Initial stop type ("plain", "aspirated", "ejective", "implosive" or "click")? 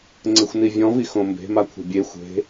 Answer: click